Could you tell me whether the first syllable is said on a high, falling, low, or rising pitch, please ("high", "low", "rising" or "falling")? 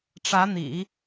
rising